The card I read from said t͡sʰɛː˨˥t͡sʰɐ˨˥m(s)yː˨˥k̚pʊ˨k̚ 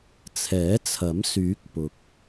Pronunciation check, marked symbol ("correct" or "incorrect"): correct